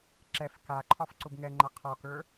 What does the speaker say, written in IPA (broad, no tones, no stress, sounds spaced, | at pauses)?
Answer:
ǁ ɛ f k a ǃʰ ɒ f ǀ ʊ b ŋ ɛ ŋ͡ǃ a qʰ ɒ k ə˞